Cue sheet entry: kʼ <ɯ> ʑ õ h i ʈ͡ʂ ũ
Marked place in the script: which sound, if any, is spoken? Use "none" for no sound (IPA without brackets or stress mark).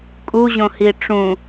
u